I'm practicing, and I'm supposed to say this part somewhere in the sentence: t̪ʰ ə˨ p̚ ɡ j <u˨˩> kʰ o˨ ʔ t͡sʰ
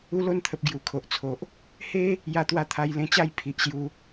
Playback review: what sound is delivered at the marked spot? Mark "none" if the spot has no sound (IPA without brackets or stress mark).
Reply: u˨˩